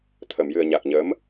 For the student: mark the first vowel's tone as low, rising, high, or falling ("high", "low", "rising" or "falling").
low